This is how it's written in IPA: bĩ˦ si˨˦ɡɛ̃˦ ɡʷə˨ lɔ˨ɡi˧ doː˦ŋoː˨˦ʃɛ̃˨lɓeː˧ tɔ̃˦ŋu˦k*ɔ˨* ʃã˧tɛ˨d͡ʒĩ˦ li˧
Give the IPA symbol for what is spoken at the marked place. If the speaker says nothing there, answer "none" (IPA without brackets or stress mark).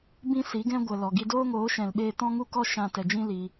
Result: ɔ˦